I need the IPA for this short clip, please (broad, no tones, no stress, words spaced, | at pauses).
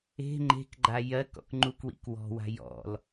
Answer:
e̤ ŋ͡ǃe̤kɡ͡ǃa jɜk ɔ̰kŋ͡ǃukwḭk wɔ̤wa̤ jɔ̰l